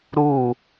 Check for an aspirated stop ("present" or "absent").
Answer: absent